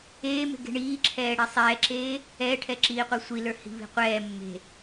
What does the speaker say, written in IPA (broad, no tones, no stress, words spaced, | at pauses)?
eːme̤ɡe̤ ɳiːǁʰɛːɽi sˤɛːǁeː | ɛːʈʰɛǁiːqʷɛ sʷilə˞hi̤βi̤ qʷɛː mːe̤